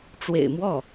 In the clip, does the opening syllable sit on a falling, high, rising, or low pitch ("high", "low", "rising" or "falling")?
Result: low